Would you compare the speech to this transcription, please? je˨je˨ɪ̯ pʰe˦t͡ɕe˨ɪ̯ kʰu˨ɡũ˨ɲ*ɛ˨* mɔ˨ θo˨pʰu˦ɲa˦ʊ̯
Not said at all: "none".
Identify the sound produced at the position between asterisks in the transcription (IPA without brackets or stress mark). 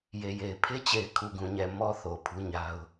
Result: ɛ˨